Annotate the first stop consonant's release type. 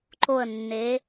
click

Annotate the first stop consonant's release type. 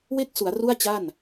plain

